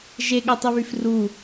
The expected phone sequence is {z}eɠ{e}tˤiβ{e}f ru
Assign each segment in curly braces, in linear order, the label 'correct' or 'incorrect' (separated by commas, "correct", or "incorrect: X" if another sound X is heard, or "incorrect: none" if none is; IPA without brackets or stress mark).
incorrect: ʒ, correct, incorrect: y